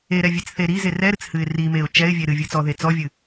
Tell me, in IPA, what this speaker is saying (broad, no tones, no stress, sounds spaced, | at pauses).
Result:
e ɾ ɛ vʲ e t͡s θ e ɾ i z e r ɛ ɾ ɨ t͡s h ɨ ɪ̯ r i m e ʊ̯ t͡ʃ ɛ ɪ̯ vʲ e ɾ ɨ vʲ ɨ t͡s ɔ ð e t͡s ɔ vʲ ɨ